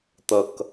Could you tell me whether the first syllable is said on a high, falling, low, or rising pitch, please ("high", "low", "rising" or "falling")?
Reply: low